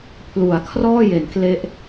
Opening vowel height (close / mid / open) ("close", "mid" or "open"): close